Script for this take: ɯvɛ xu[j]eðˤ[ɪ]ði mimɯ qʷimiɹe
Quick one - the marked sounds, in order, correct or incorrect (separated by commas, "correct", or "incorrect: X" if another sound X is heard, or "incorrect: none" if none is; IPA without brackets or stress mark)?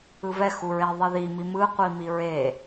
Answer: incorrect: ɹ, incorrect: i